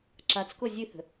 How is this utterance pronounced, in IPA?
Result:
ǁ a t͡s k o zʲ ɨ h ə̤

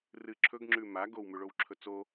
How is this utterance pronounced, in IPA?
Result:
r ɨ ǁʰ ɵ ɡ ŋ͡ǁ ʉ m a ɡ o w m ʉ ɭ o w ǁʰ ɵ t͡s o

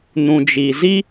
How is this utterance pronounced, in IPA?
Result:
n ũ˨ d͡ʒ i˨ z i˦

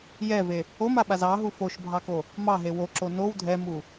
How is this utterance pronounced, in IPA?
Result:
j ɛ v e | o m a ɓ a z ɑ ɦ u f o ʃ bʱ ɑ k o | m ɑ ɦ e w o ǁ o n o w dʱ ɛ m u

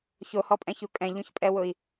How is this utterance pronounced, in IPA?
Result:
ç o h ɔ pʼ ɛ̃ ç u kʼ ɛ̃ ʎ ũ ç pʼ ɛ w ʊ i̯

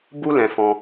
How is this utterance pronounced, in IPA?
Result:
b u˦ l ɛ̃˧ f ɔ̃˧

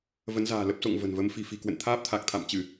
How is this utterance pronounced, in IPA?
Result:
v ə˨˦ n z a̤ː˨˩ l ə˦˥ p̚ s o̰˧˨ ŋ v ə̤˨˩ n v ə˧ m f i̤˨˩ f i̤˨˩ k w ə̰˧˨ n t̪ʰ aː˦˥ p̚ t̪ʰ a˨˩ k̚ t̪ʰ a̰˧˨ m t͡ɕ ɨ˧˩˨

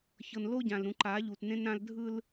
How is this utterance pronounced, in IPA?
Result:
ç ɤ˨ n l o˦ ɟ ã˨ l ɾ ũ˨ ǃ a˨˦ ʎ u˨ t n ẽ˦ n ɾ ã˦ l dʱ ɯ˦ l

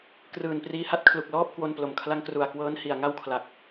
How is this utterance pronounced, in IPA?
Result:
k r ɯː˨˩ n p r iː˧ h a˥˩ t̚ kʰ l u˨˩ k̚ l ɔː˥˩ p̚ k w o˧ n p l o˨˩ m kʰ l a˦˥ ŋ k r u˨˩ a̯ k w ɤː˦˥ n h i˨˩ a̯ ŋ a˥˩ w kʰ l a˨˩ k̚

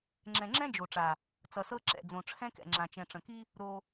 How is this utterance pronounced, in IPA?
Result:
ŋ͡ǁ ɛ̃˨ ŋ͡ǁ ɛ̃˦ d͡ʒ o˨ ʈ͡ʂ a˨ | t͡s ʌ˨ s ɤ˦ ǁ ɛ̰˨ d͡z õ˨ ʈ͡ʂʰ ɛ̃˦ k ɛ̰˨ ŋ͡ǁ ã˨ t͡ʃ ɛ̃˨ ʈ͡ʂ ə̃˨ k i˦ | ɾ o˧

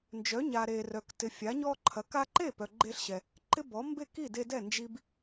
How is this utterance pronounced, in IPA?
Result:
n d͡ʒ œ˨˦ ɲ a˨ ɾ e˨ r œ˨ k t ɪ˨ fʲ a˨˦ ɲ ɔ˦ ǃʰ ɐ˨˦ k a˦ ǃ e˥˨ p œ˨ ɡ͡ǃ e˦ ɬ ɕ ɛ˨ | ǃ ɪ˦ b ɔ˨˦ m b e˥˨ k i˥˨ d e˦ d ɛ˥˨ n d͡ʒ i˦ b

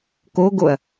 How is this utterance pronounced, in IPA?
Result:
k o ɡ o ɐ̯

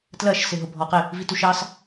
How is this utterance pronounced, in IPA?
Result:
t l ɜ ʃ s ɪ ɦ ʊ bʱ ɔ q ɪ | v i t u ʃ ɑ s

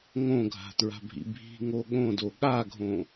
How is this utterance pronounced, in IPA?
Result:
ŋ õ ɡʱ a̤ t ɹ a̤ bʱ ḭ bʱ i̤ ŋ o ɠ õ d o ɠ a ɡʱ õ

